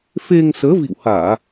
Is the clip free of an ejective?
yes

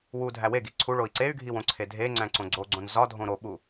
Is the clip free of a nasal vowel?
no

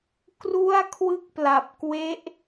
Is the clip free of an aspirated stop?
no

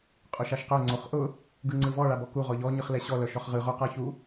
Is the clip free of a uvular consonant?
no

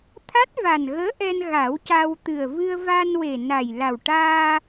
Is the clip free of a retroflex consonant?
no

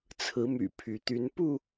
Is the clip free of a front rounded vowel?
no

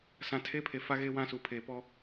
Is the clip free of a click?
yes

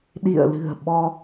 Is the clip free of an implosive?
no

